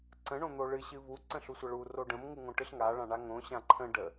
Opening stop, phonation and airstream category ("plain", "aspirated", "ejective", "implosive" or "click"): click